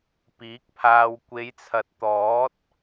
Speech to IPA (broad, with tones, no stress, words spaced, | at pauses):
piː˨˥k̚pʰaː˧w kʷe˨˧jt͡sʰɐ˨˥t̚ t̪ɔː˨˥t̚